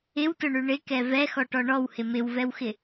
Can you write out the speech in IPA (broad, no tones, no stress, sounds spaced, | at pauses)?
ɪ w t ʊ ɳ ʉ ɳ ɪ k ɛ v ɛ x ɔ ʈ ɔ ɳ ɔ w h ɪ m ɪ w v ɛ w x ɪ